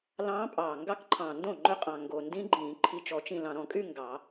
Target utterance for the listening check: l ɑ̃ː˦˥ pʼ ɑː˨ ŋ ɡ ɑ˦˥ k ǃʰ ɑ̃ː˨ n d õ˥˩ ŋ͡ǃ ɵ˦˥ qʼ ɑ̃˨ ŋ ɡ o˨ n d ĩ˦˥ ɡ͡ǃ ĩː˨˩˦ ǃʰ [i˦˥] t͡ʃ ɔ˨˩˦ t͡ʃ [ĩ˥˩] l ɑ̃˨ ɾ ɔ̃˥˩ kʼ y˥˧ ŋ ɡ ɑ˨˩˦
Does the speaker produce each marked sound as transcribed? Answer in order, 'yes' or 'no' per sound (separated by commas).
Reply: no, no